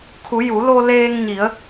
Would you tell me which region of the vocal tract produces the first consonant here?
velum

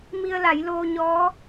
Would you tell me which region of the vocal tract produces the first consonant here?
lips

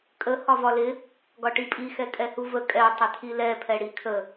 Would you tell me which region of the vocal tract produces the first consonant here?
velum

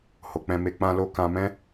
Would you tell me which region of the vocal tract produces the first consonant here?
throat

